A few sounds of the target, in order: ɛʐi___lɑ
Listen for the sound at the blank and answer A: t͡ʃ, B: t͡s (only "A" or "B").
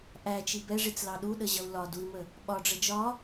B